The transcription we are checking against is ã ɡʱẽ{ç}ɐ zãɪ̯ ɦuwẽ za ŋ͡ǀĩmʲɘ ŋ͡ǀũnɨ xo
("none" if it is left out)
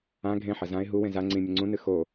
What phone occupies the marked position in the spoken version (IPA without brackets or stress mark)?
ħ